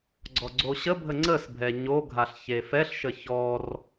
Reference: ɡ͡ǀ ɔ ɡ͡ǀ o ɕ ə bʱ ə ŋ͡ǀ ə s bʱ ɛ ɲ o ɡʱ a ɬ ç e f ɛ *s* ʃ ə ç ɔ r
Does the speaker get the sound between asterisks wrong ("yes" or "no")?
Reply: yes